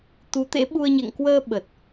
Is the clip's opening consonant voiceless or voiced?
voiceless